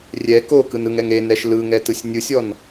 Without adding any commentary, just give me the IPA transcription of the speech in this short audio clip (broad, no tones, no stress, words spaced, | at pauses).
rʲɛ kokɯn ɯŋɛŋ enɛʃ lɯŋɛtɯsʲ nʲɯsʲɔn